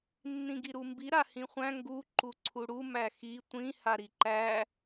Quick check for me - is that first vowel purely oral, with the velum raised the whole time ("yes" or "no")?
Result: no